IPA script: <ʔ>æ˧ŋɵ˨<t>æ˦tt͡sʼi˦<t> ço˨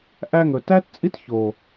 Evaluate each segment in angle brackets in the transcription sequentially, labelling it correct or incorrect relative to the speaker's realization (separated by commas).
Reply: correct, correct, correct